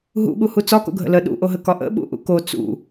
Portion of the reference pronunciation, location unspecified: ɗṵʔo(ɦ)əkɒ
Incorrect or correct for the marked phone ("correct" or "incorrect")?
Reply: correct